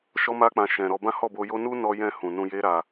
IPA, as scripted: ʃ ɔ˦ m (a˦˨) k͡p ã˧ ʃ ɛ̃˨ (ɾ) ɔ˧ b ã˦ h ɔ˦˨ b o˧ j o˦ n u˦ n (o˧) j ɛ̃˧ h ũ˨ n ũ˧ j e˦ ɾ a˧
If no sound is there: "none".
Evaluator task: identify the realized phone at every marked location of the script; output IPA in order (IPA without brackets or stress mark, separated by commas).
a˦, ɾ, ɔ˧